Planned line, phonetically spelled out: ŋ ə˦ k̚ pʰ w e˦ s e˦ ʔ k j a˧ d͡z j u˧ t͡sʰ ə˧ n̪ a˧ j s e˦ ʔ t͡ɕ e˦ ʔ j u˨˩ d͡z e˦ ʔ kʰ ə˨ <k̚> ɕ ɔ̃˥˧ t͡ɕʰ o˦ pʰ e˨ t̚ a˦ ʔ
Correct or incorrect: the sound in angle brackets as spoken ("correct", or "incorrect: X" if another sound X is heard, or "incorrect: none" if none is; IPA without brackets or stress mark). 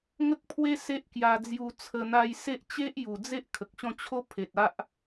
correct